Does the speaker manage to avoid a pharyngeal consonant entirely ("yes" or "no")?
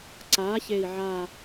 no